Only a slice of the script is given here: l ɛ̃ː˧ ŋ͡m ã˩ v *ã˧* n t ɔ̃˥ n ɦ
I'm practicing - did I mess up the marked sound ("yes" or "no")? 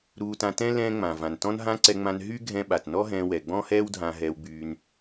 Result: yes